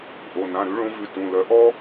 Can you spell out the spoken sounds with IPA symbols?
ʔ o˩˧˩ n ã˩˧˩ ɾ ʉ˨˦ ɭ õ˨˦ v ʉ˩˧˩ t ũ˩˧˩ l œ˨˦ ʔ ɔ˥

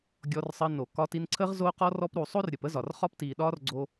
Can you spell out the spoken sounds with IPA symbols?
ɡʲ ɔ˧ r sˤ əː˧ n o˨ k ɒ˧ t i˧ n ǀʰ əː˦ ʁ z oː˦ q ɔ˦ r ɔ˦ p ɾ u˧ sˤ o˦ r ɾʲ ə˨ p ə˦ z ɒ˨ r χ ɒ˦ p t iː˨ ɗ ɒː˦ r ɡ͡ǀ o˦

